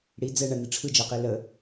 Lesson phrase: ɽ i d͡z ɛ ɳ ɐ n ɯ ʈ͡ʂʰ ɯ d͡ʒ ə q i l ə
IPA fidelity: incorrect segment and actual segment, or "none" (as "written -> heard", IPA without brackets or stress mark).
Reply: none